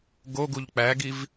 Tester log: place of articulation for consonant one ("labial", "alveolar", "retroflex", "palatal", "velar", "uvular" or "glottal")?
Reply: velar